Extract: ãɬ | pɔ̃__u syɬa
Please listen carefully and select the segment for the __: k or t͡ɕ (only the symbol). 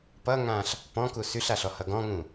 k